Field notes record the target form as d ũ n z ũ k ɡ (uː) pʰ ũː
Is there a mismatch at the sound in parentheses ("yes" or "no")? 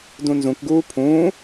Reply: no